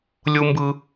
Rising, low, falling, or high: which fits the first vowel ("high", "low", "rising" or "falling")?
high